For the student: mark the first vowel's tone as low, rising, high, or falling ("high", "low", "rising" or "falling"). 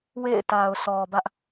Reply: falling